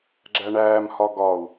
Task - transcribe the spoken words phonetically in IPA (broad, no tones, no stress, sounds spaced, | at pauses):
ɡ͡ǁ æ ɳ æː m h ɒ ɡ ɒ u̯